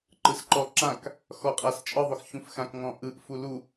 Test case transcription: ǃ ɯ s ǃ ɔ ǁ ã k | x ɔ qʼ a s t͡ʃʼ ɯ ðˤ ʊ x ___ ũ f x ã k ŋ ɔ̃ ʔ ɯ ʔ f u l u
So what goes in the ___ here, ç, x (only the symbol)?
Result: ç